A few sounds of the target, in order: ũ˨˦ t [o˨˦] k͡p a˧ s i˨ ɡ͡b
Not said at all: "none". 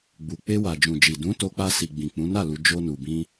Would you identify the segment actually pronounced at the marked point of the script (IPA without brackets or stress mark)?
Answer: o˧